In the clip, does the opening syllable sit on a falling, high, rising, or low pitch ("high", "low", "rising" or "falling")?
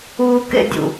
high